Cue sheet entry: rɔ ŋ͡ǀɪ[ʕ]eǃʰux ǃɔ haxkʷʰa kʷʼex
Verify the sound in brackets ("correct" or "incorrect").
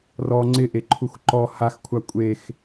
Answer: incorrect